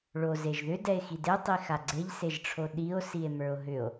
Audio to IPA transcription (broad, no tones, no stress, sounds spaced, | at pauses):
ɭ o z e ʒ ð ʏ d ɛ e̯ x i d e tˤ i x a ɡ͡ǀ e ʎ s e ʒ ʈ͡ʂʰ o ɗ i o̯ s i e̯ m ə˞ o̯ ɦ ʏ o̯